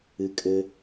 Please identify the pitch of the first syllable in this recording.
low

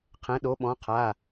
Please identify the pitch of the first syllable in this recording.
rising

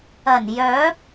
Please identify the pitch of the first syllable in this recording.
low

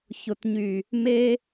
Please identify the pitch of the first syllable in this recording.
low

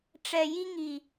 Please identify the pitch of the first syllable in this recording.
low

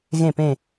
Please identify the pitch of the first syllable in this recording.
falling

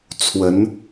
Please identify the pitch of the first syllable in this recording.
rising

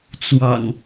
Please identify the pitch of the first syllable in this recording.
low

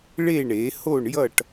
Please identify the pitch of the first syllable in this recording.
falling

